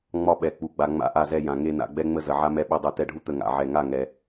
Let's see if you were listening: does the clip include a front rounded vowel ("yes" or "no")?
no